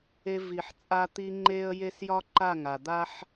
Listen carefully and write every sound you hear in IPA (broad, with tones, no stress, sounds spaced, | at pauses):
e˧ v i˨ ħ t͡sʼ a˧ t̪ i˧ ŋ͡ǃ e˦ ə̯ j e˦ s j ɒ˦ ǃ a˦˨ ŋ a˨ d̪ a˦ ħ